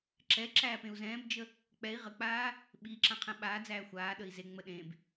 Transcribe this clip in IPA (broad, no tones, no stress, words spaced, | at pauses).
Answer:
ǁɛ ǁæːpẽu̯zɛ̃ːbd͡ʒə | k͡pɛi̯ ʁək͡paː | ɓiǁã qʰɛ̃ɓaːd͡zæː xʷaːɗəi̯ zeŋ͡mə ɗẽb